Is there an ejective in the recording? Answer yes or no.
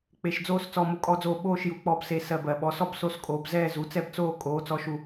yes